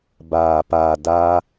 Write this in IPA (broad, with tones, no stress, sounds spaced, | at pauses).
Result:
b aː˧ p aː˧ d aː˦